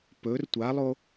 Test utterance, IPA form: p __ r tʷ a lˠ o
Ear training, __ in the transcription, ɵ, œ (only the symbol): ɵ